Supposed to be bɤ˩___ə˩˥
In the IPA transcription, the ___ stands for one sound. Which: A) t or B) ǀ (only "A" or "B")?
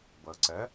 B